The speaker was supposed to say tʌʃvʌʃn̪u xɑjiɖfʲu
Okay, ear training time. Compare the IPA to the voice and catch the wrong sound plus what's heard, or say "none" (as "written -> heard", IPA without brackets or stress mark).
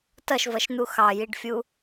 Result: none